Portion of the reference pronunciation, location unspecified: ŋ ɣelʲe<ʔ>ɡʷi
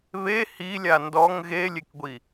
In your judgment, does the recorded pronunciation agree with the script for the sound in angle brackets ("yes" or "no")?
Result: no